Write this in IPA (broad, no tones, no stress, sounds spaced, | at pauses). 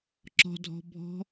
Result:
ǁ ɔ̤ dʱ ɔ̤ bʱ ɔ̤